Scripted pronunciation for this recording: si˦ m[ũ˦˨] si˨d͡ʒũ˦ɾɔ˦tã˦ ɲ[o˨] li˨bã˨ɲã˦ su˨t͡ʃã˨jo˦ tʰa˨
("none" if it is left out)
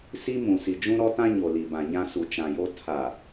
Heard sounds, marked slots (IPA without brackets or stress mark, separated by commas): ũ˨, o˨